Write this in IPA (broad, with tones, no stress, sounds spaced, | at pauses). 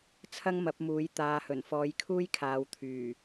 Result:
t͡sʰ ɐ˥ ŋ m ɐ˨˥ p̚ m uː˨˥ j t̪ aː˨ h ɵ˨˩ n f ɔː˨˧ j kʰ uː˥ j kʰ aː˨ w t̪ʰ yː˨˩